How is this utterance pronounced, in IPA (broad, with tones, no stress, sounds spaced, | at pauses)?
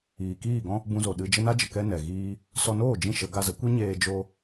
iː˨ k iː˦˨ ɡ ɔ̃˦ | b ũ˧ z o˨ ɗ ɨ˧ d͡ʒ ə˦ n a˦ d͡ʒ ə˨ k ɛ˦ n ɛ˨ ɣ iː˦ | s ɔ˧ n oː˦˨ d͡ʒ ĩ˦ ʃ ə˨˦ ɡ a˧ z ə˨˦ kʷ i˦ ɲ eː˧ d͡ʒ o˦